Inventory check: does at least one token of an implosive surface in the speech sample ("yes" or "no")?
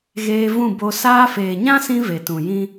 no